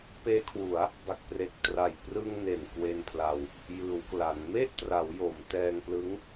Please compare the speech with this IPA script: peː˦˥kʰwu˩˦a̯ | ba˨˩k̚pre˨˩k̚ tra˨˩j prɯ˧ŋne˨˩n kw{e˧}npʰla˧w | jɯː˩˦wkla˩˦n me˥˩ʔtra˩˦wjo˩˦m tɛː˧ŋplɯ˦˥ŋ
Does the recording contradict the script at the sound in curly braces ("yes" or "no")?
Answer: no